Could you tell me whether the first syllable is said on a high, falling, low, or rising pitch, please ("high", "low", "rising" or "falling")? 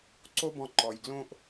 high